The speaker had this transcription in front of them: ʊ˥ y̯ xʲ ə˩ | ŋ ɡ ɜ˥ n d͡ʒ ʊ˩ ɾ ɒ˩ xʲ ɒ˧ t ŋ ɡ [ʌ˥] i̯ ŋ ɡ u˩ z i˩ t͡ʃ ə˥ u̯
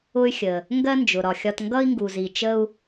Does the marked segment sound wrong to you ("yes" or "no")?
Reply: no